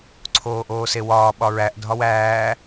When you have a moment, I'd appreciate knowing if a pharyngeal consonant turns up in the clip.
no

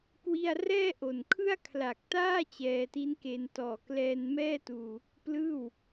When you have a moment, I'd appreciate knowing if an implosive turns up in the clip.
no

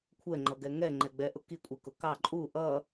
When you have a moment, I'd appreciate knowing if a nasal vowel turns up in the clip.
no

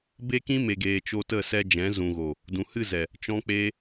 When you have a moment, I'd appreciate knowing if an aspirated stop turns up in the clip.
no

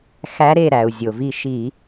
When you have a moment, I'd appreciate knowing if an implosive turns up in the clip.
no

